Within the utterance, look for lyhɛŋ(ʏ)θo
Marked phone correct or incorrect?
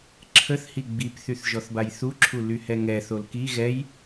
incorrect